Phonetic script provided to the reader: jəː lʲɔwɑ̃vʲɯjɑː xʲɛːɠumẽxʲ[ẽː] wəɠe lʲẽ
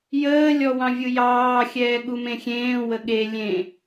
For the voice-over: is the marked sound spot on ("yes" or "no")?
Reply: yes